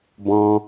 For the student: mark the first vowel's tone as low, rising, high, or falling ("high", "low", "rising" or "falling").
high